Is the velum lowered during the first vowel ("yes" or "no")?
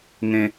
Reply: yes